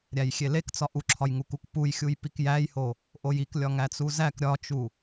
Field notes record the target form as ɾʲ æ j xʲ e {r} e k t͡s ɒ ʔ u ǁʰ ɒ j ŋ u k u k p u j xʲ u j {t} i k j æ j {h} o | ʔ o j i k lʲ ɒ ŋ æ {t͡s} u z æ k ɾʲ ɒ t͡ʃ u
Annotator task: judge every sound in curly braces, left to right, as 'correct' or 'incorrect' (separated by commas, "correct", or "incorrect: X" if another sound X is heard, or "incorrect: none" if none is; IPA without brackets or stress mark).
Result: incorrect: l, incorrect: p, correct, correct